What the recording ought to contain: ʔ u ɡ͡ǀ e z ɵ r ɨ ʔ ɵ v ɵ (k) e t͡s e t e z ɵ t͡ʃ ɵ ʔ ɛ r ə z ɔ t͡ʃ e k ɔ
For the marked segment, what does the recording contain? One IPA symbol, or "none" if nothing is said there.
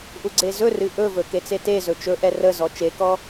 k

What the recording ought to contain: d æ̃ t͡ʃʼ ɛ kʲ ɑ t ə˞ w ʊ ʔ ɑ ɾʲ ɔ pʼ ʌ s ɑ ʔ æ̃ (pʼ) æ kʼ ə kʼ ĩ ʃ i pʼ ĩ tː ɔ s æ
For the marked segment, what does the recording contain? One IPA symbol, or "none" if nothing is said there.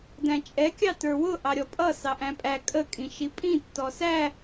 pʼ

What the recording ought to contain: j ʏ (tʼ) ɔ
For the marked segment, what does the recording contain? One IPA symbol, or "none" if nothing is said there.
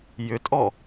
tʼ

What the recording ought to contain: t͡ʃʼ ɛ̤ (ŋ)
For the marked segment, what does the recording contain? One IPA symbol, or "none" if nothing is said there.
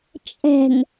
ŋ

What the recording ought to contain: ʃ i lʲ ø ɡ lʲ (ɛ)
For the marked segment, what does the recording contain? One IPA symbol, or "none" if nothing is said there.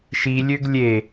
e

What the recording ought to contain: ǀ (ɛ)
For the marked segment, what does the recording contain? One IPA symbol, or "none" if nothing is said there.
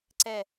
ɛ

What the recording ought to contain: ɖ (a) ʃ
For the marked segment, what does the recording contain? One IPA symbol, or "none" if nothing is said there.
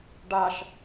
a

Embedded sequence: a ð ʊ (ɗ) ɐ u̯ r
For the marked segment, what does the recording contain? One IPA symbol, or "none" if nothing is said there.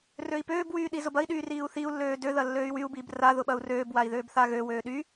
ɓ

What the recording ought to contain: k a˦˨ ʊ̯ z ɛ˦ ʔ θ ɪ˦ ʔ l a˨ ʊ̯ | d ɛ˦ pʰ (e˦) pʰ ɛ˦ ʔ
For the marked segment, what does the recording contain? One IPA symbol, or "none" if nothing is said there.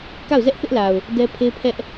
e˦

